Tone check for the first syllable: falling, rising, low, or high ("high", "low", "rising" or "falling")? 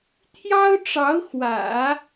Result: high